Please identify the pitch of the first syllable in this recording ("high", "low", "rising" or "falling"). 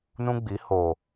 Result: high